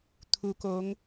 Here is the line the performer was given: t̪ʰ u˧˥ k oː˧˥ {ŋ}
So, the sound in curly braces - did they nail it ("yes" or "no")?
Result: yes